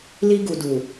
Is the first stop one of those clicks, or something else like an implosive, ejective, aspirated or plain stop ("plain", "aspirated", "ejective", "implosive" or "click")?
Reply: plain